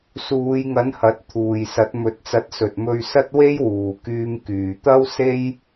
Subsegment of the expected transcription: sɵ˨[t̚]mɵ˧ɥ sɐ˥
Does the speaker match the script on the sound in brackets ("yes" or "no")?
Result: yes